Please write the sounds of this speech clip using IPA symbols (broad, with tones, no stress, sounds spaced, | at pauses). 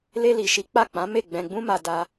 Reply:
l e˧ l i˨ ʃ i˨˦ k͡p a˦˨ k͡p ã˨˦ m e˦˨ ɡ͡b ɛ̃˧ ɡ͡b ũ˦ m a˧ d a˧